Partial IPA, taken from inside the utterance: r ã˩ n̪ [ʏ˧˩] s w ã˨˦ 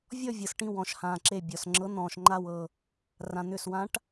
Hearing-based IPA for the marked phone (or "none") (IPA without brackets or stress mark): ʏ˧˩